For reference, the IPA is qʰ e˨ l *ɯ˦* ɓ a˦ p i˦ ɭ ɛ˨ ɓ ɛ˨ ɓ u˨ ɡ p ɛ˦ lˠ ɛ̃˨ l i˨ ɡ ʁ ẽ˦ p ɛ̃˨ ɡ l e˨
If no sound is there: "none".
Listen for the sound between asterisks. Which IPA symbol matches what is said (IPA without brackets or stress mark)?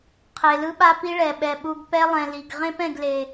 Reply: ɯ˦